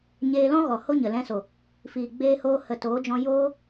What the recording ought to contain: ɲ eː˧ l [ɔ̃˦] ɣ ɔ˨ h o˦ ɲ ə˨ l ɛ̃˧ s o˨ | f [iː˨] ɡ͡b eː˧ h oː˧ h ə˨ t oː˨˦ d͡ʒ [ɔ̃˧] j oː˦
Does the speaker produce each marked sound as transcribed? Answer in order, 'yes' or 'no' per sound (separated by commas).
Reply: yes, yes, yes